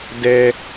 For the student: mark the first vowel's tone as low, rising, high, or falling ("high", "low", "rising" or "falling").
low